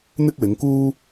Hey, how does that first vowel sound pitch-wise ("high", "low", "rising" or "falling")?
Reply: high